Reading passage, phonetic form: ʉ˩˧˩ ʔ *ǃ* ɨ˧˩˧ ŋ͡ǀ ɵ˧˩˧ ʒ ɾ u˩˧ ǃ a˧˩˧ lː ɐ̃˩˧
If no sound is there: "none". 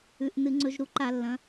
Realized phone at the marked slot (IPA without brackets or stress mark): n